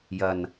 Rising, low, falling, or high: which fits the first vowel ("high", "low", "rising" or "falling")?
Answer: low